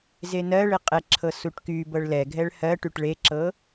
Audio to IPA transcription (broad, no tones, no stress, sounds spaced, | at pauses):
z e n ɜ ɭ e qʼ ɛ ǁʰ ɤ s u ʈ k y b ɤ ɭ l ɛ ɡʱ ɛ ɭ h ɜ ʈ y ʈ ɭ e ǁ ɤ